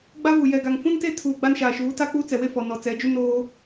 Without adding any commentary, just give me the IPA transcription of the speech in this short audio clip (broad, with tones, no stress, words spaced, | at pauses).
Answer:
ɡ͡ba˦vu˨ jɛ˨ɡa˨ŋ fũ˦nte˦tʰuː˨ ɡ͡ba˦nʃaː˨ʃuː˨˦ ta˦k͡pu˦ t͡sɛ˨we˦fɔ˨ nɔ˨ t͡sɛ˨˦d͡ʒu˦ noː˦